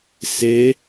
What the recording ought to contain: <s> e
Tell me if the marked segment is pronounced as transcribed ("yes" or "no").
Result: yes